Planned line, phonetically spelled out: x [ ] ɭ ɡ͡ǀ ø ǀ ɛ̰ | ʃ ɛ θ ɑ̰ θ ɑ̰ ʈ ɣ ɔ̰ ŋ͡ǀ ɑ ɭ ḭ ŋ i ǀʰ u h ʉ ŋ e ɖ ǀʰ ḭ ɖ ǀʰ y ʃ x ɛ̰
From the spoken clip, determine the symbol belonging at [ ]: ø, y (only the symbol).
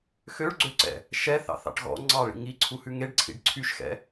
ø